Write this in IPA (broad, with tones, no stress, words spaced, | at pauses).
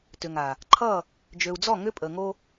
tʏ˨ŋa˨ | ǃʰʌ˦˨ | d͡ʒø˨u̯d͡zɔ˦˨ŋʏ˦ pʼə˨ŋo˦